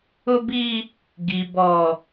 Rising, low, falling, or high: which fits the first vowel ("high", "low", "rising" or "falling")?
high